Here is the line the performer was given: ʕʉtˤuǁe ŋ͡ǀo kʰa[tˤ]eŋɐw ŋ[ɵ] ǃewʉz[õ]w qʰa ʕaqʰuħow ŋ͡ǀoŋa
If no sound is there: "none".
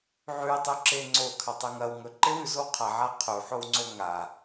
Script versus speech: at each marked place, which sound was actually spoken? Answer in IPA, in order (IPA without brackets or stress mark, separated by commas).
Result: tˤ, ɵ, o